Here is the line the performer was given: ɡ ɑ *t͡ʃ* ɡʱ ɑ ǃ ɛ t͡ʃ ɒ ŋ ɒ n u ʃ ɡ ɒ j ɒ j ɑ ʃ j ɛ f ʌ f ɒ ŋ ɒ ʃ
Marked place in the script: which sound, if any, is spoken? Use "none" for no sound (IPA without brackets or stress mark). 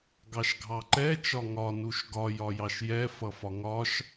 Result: ʃ